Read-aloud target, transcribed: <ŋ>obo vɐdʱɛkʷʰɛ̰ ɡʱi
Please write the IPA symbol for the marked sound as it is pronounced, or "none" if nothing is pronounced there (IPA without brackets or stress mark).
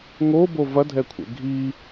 ŋ